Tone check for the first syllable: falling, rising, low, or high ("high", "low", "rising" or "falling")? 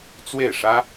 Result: falling